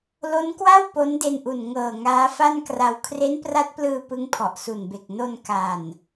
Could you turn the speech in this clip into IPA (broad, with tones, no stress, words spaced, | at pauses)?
lo˦˥nkwa˥˩w po˦˥nde˧nʔu˨˩n ŋɤː˨˩ ŋaː˦˥fa˥˩nkra˧w kʰre˦˥npra˦˥t̚plɯː˧ pɯ˦˥ŋpʰɔ˨˩ʔsu˨˩nbe˨˩k̚ no˧n ka˨˩n